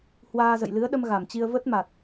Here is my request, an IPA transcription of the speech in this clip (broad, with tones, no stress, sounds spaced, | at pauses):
h w aː˧ z ə̰˧˨ j l ɨ˨˦ ə̯ ɗ ə˧ m ɣ a˧˩ m t͡ɕ i˧ ə̯ v ə˦˥ t̚ m a˨˩ t̚